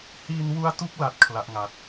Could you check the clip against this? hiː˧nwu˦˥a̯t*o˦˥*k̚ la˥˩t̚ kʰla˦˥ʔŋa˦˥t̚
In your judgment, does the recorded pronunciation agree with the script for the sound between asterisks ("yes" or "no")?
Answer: no